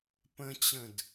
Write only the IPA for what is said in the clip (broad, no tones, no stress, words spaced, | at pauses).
pə̃t͡ɕə̃d